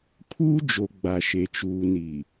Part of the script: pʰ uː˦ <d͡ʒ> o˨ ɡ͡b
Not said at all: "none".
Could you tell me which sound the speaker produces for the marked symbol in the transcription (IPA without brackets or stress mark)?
d͡ʒ